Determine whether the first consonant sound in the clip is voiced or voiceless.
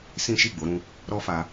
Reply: voiceless